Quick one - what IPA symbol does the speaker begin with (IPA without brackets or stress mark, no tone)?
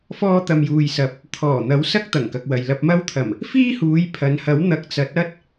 f